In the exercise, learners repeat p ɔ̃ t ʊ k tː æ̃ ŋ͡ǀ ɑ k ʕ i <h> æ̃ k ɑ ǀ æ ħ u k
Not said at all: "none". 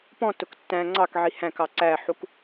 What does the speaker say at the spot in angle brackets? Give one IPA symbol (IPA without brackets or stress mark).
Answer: h